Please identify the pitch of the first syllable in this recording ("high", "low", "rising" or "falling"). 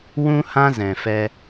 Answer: high